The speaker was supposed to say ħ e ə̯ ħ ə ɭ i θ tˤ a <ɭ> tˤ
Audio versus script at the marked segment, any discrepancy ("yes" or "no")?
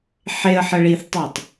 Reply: yes